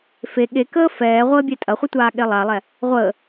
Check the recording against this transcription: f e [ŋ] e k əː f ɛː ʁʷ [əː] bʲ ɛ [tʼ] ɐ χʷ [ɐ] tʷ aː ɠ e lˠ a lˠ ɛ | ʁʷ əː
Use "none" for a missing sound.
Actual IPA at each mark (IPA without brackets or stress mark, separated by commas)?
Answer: ɠ, əː, tʼ, ə